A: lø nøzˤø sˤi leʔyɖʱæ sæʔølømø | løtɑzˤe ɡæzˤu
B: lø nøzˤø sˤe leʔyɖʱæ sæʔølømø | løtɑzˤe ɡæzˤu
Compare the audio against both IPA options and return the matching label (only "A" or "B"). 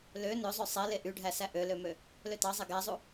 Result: B